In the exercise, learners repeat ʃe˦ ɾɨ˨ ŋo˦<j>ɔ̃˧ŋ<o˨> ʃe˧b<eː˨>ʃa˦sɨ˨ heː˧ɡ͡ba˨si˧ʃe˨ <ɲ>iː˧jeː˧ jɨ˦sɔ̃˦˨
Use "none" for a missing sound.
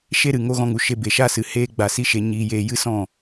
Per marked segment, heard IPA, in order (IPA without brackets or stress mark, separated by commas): ɣ, u˨, e˨, ɲ